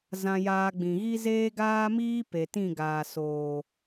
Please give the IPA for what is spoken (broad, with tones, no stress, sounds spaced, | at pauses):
z ã˧ j aː˧ ɡ͡b ĩ˨ ɣ i˦ z eː˦ ɡ aː˦ m iː˦ p e˨ t ĩ˦˨ ɡ aː˨ s oː˨